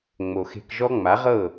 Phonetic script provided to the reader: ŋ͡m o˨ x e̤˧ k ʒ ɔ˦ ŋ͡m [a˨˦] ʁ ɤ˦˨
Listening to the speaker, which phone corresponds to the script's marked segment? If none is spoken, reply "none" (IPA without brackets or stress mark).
a˨˦